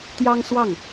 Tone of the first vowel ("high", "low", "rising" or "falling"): high